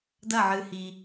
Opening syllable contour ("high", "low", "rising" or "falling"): falling